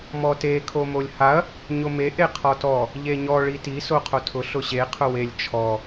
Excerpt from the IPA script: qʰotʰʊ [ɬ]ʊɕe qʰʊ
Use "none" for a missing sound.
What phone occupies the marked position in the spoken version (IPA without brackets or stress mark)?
ɬ